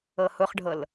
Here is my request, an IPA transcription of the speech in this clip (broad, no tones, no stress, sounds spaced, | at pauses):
ɤ h ʊ χ ɖʱ ɤ l